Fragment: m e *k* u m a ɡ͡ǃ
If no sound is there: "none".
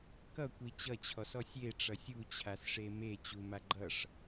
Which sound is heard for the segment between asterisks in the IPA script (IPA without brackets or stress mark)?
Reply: t͡ɕ